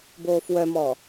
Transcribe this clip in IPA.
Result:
b oː f w œ m ɔ

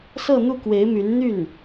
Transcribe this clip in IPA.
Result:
s ɤ˥˧ n̪ u˥˩ k w e˧˥ ɪ̯ m y˧˥ n n̪ y˥˩ n

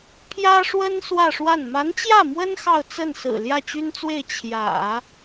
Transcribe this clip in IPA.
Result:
pʰ j ä˥ ʂ w ə˥ n s w ä˥˧ ʂ w a˥˩ n m a˧˥ n t͡ɕ j ä˥˩ m w ə˥ n x ɑ˥˧ ʊ̯ t͡s ə˥˩ n s ɹ̩˨˩ l j ä˥˩ t͡ɕ y˥ n t͡s w e˥˩ ɪ̯ t͡ɕʰ j ä̰˨˩˦

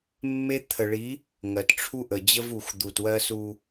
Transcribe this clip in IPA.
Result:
mː e˦ t̪ʰ ə˨ ɭ i˨˦ | ŋ ɜ˨ t ʈ͡ʂʰ u˦ ʔ ə˨ d͡ʑ ə˦ v u˨ x d̪ u˨ t w ɜ˦ s u˦

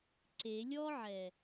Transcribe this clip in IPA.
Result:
ǀ e lʲ ɔ ʕ ɛ

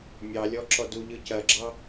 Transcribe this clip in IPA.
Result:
mʲ ɑ lʲ ɔ ǁ ɔ d u ʎ ɯ c ɐ ɡ͡ǁ ɑ

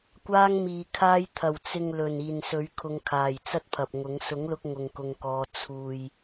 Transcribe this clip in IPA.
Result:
kʷ aː˧ ŋ m iː˨˩ kʰ aː˧ j t̪ʰ ɐ˨˩ w t͡s ɪ˨ ŋ l ɵ˨˩ n iː˨˩ n s ɵ˨˥ ɥ kʰ ʊ˨˧ ŋ kʰ aː˨˩ j t͡s ɐ˥ t̚ pʰ ɐ˨ p̚ ŋ ʊ˨˥ ŋ s ʊ˨˥ ŋ l ʊ˧ k̚ ŋ ʊ˨ ŋ k ʊ˧ ŋ k ɔː˧ t͡sʰ uː˨ j

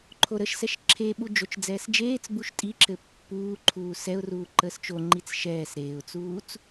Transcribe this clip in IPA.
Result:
ǃʰ o ɾ ə ʃ s ɛ ʃ ǁʰ e ɓ u d͡ʒ o t͡ʃ d͡z ɛː s d͡ʒ eː t͡s b u ʃ tʼ i ǁ ɘ pː uː ǃʰ uː s ɛ ʊ̯ r uː ǃ əː s t͡ʃ o ŋ͡ǃ i t͡s ʃ ɛː s ɾ eː ʊ̯ t͡s uː t͡s

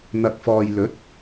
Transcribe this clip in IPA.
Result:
n̪ ɐ˨ k̚ f ɔː˨ j l ɵ˨˥ t̚

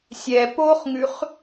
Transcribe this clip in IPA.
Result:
sʲ ɛ p o χ ŋ ʉ χ

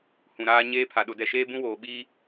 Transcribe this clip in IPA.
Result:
h ũ˨ ɾ aː˦ ɲ eː˦ pʰ a˨ ɗ ʊ˨ d ɛ˨ ʃ eː˦ b ũ˦ w oː˨ ɓ iː˦

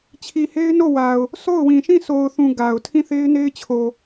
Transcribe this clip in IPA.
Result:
t͡ɕʰ i˨ h e˦ ɪ̯ n o˦˨ w a˨ ʊ̯ | s o˦˨ ʊ̯ w ĩ˨ ʃ ĩ˦˨ sʰ o˨ ʊ̯ θ ũ˨ ɡ a˨ ʊ̯ tʰ ĩ˦˨ θ e˦ ɪ̯ n e˦ ɪ̯ t͡ɕʰ o˨

